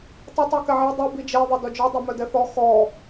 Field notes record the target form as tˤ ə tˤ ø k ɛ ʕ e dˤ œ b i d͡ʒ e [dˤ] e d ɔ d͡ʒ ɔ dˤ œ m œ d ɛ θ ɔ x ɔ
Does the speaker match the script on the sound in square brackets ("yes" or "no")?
no